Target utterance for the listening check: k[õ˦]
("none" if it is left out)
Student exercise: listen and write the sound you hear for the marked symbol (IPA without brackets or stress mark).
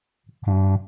õ˨